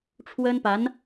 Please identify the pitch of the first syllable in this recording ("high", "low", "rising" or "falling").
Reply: high